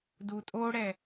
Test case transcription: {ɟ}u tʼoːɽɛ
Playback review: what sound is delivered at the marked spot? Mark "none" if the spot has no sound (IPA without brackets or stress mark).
d